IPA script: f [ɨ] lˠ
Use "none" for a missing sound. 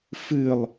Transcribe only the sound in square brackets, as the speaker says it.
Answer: ɨ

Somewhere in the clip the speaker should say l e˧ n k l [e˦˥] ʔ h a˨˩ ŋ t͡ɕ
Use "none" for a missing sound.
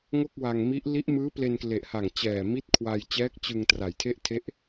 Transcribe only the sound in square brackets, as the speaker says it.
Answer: e˨˩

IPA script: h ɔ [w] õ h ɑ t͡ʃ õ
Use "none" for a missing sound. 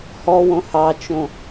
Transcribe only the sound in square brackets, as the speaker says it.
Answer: w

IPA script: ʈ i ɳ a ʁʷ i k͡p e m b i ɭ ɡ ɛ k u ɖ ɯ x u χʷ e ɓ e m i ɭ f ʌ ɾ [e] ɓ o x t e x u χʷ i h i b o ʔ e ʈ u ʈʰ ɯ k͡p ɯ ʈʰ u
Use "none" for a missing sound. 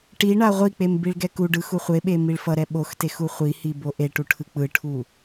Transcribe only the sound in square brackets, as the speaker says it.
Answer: ɛ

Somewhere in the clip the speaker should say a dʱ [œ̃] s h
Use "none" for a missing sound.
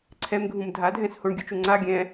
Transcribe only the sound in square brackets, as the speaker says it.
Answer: ɛ̃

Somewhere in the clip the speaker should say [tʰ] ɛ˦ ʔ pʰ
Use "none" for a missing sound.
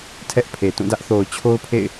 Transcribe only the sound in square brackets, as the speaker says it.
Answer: tʰ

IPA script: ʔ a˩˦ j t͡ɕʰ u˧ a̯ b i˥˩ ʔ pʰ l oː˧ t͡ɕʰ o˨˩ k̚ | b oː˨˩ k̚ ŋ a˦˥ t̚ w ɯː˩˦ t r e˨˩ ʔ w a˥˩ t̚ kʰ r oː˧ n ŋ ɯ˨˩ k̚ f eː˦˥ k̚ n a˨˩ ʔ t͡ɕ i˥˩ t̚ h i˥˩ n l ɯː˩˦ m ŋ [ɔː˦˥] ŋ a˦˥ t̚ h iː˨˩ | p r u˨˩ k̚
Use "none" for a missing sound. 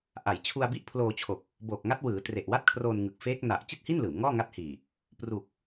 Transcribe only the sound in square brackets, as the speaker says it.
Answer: ɔː˥˩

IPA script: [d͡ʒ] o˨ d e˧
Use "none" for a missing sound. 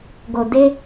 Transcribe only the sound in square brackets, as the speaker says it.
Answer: ɡ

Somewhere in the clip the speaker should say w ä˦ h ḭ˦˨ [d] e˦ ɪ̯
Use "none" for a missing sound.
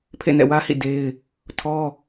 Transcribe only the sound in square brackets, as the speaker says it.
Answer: d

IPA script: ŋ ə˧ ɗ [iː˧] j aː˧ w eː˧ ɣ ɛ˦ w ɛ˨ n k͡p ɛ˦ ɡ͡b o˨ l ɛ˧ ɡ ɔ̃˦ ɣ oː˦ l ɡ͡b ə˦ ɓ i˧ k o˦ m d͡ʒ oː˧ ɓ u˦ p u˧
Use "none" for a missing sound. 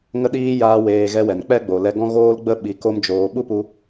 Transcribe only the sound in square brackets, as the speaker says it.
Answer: iː˧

